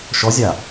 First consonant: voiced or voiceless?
voiceless